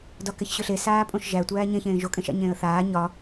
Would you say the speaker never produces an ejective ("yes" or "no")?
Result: no